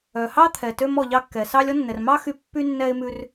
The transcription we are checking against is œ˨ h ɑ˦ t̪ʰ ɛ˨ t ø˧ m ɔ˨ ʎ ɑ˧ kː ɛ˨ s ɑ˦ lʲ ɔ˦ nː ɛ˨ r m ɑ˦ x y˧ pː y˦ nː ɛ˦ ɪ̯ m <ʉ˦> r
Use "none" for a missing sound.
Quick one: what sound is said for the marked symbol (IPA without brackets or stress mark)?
ʉ˦